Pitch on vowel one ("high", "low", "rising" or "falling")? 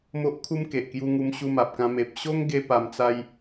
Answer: high